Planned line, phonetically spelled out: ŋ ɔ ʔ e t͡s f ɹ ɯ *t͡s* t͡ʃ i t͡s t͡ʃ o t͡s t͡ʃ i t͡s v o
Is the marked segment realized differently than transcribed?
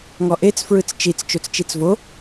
no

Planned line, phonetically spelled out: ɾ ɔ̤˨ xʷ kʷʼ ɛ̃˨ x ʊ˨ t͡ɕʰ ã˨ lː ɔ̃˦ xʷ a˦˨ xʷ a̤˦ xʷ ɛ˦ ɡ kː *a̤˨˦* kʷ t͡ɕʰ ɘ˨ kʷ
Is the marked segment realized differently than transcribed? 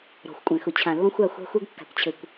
yes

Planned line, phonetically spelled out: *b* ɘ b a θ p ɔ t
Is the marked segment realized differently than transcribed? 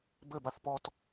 no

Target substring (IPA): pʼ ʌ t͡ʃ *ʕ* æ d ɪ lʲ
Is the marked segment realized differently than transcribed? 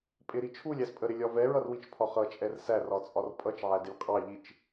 no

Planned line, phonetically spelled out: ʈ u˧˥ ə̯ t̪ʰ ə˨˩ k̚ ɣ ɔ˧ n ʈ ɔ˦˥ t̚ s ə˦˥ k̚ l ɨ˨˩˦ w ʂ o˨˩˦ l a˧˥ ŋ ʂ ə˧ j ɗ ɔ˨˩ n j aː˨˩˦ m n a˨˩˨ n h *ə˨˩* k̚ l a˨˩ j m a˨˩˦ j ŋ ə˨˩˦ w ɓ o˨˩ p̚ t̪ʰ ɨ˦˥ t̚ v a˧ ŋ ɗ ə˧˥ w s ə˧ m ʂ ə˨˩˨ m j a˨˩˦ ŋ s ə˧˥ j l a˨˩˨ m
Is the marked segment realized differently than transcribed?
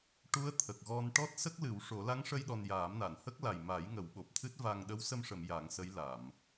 yes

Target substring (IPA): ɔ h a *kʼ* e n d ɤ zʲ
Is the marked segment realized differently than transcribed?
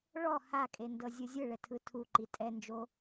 no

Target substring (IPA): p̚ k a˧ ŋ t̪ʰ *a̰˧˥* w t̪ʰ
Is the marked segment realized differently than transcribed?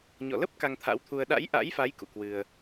no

